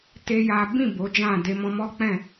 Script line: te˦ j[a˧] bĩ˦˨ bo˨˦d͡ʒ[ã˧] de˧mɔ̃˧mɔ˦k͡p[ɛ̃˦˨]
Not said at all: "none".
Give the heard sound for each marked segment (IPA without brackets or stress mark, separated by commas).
a˦, ã˦˨, ɛ̃˦˨